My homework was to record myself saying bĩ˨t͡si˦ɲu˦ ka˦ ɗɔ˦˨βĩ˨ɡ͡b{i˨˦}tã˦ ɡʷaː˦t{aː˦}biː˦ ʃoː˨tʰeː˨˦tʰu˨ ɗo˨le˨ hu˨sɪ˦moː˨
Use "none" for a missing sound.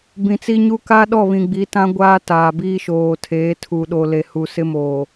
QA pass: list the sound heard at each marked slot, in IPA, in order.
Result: i˨˦, aː˨

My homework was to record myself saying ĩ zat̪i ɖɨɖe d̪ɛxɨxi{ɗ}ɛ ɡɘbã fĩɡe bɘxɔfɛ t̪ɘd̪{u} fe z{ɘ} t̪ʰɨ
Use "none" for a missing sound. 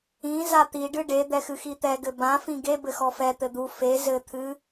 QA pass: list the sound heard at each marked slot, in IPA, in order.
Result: t̪, u, ɘ

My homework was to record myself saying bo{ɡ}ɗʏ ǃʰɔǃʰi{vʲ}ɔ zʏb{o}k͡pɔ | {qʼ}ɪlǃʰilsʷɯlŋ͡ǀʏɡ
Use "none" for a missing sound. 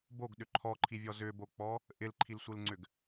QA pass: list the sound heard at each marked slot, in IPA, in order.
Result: ɡ, vʲ, o, ʔ

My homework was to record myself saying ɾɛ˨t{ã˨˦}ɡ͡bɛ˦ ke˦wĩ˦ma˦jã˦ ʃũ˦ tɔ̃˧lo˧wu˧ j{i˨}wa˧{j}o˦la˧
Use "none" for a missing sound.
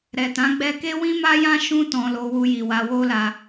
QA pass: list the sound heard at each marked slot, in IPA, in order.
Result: ã˨˦, i˨, w

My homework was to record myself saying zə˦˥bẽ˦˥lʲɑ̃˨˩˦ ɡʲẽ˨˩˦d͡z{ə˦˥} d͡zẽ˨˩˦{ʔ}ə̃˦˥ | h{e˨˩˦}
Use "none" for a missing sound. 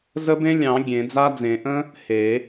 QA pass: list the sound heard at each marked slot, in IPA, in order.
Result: a˦˥, ʔ, e˨˩˦

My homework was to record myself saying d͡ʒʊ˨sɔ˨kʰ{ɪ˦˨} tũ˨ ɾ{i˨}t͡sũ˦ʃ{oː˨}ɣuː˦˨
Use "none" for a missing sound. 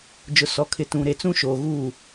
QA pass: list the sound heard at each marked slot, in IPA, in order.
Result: ɪ˨, e˨, oː˨

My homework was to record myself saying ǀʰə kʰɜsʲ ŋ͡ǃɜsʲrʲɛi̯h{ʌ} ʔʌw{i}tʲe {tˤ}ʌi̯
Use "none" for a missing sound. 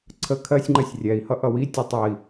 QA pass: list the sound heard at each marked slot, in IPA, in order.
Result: ʌ, i, tˤ

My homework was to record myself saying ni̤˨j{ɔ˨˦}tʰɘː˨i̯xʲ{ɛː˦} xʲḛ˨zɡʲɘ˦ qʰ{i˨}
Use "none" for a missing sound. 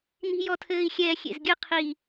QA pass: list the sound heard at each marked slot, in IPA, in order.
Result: ɔ˨, ɛː˨, i˨

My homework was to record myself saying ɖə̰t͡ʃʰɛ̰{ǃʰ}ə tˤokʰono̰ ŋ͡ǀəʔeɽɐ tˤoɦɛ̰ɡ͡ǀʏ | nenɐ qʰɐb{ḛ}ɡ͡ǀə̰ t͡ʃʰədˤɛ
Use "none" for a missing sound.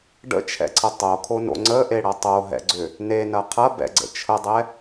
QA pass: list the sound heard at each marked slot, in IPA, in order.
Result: ǀʰ, ɛ̰

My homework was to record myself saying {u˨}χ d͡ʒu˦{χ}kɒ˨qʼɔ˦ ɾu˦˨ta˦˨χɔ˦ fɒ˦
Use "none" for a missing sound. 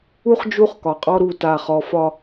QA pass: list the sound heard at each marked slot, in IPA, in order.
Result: u˦, χ

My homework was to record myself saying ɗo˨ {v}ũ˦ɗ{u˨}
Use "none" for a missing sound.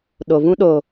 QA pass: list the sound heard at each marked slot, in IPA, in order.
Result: v, o˨

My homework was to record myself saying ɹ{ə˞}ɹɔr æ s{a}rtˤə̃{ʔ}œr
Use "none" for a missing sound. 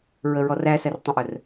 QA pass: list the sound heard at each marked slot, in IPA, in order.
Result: ə, æ, ʔ

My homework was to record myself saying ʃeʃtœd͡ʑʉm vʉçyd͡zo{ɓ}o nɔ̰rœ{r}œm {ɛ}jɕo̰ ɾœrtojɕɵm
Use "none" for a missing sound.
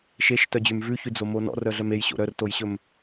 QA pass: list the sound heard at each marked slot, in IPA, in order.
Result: m, ɮ, e

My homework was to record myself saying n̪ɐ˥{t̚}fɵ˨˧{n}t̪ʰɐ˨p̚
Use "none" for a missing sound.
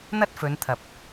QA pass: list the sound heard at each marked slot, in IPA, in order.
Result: t̚, n

